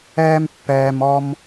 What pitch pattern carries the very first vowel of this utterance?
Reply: high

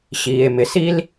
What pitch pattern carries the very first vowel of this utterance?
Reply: low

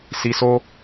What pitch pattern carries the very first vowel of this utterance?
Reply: low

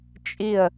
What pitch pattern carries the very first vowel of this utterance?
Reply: falling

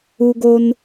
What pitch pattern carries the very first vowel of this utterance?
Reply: low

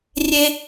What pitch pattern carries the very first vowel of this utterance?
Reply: high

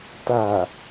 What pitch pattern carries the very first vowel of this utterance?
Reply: low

